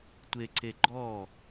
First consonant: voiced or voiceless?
voiceless